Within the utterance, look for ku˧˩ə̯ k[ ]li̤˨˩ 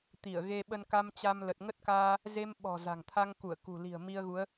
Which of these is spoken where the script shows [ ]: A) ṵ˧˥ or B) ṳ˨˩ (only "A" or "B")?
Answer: B